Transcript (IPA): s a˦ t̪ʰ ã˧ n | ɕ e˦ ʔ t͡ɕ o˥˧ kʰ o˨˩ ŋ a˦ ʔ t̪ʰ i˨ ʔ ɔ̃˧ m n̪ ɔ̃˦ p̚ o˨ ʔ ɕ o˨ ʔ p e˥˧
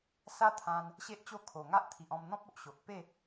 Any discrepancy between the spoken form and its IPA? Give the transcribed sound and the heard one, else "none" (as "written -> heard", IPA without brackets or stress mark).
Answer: none